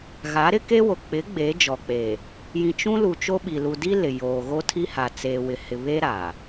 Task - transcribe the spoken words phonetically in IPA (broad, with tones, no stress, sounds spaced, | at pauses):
ɣ a˨˦ ɾ ɪ˦ k e˦ w o˨ k͡p ɪ˨˦ ɡ͡b eː˨˦ d͡ʒ ɔ˨ k͡p eː˨ | j ĩ˨ t͡ʃ ũ˦ l u˨ t͡ʃ o˦ ɓ i˨ l u˨ d i˦ l ɪ˨ j oː˨ ɣ o˦ tʰ i˦ h a˨ t͡s eː˨ w ɪ˨ h ɪ˨ β e˦ ɾ a˨